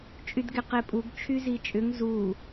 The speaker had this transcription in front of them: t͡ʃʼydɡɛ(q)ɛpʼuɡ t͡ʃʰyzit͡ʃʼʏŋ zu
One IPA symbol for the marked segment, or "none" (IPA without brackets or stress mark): q